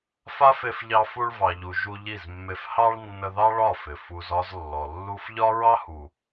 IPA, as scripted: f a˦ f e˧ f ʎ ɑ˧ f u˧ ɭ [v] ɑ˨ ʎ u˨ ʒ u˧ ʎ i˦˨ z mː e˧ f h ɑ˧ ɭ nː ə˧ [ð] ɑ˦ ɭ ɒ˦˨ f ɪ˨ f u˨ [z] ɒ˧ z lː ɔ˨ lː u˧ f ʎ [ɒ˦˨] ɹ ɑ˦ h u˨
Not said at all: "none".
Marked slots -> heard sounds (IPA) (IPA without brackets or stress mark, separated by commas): v, ð, z, ɒ˦